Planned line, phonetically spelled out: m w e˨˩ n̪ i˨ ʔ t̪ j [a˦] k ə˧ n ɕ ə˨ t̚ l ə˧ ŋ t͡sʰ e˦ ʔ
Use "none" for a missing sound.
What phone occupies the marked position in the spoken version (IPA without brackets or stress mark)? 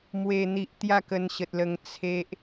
a˥˧